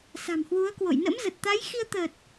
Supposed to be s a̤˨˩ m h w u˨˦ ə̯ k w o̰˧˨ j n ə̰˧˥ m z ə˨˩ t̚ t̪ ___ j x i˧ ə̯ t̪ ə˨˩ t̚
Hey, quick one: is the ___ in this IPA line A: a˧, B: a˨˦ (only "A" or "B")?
B